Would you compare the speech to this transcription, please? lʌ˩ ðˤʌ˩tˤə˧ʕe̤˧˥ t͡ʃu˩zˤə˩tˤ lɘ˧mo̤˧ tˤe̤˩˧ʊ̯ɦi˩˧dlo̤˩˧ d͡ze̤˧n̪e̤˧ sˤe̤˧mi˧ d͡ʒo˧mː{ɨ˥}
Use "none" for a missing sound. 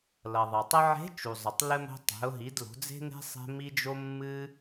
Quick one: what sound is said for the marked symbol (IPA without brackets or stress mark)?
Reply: ɨ˧